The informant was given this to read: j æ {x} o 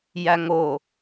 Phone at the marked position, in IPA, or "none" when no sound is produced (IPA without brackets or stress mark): ŋ